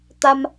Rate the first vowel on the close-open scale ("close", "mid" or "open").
open